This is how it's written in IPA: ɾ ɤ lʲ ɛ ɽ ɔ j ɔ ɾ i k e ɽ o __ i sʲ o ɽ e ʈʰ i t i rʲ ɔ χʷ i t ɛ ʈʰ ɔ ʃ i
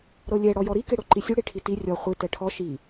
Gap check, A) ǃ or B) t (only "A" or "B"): A